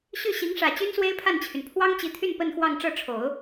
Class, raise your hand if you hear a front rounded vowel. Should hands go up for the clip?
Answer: yes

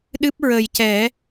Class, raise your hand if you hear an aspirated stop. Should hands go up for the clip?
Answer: no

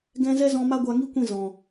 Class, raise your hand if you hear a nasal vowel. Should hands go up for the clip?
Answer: yes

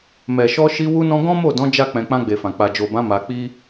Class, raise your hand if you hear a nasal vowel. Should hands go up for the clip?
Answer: yes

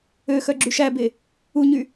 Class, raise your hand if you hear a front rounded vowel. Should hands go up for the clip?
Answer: yes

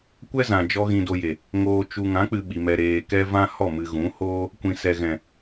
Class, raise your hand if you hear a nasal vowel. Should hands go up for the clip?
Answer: yes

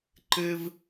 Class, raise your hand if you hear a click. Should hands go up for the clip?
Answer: yes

